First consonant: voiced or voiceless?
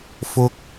voiceless